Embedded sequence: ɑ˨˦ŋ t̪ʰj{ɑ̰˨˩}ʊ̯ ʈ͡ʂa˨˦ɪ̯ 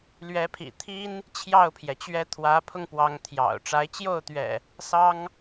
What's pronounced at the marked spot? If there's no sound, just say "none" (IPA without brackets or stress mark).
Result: ɑ̰˨˩